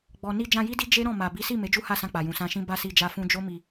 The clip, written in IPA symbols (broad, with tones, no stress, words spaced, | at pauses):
ɡ͡bɔ˨ni˧ d͡ʒã˧ji˦di˦ d͡ʒe˦ ɾɔ̃˦˨ma˨ bi˨˦si˦˨ me˨˦d͡ʒu˦ha˦˨sã˧ k͡pa˨jũ˨sã˧ʃĩ˦ ba˦˨si˧d͡ʒa˧ fũ˧d͡ʒo˦mi˧